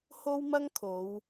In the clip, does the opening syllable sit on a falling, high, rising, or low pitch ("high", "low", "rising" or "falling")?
high